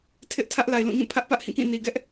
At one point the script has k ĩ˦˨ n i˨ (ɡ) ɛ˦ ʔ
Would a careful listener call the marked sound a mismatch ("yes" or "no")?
no